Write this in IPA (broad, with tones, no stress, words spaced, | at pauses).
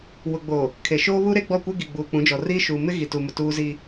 wʊ˨ɡ͡boː˨ | kʰe˨ʃoː˦βuː˦ɾe˦ ɡ͡bɔ˦˨kʷe˦ɡi˨ ɡ͡buː˨k͡pũ˨˦d͡ʒɔ˨ riː˦ʃuː˨ mɪ˦ɣi˨tu˨mʊ˨ tuː˦zi˦